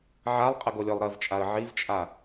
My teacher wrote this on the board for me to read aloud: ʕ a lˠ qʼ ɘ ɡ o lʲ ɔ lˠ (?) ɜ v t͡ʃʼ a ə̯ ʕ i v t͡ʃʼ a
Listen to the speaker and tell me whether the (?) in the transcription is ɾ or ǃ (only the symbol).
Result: ɾ